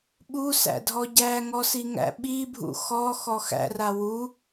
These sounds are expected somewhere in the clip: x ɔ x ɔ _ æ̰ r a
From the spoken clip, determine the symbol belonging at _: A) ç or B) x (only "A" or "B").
B